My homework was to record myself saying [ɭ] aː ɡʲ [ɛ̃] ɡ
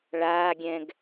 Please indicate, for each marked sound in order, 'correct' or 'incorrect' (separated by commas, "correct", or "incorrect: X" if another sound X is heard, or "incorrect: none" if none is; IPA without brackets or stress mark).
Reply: correct, correct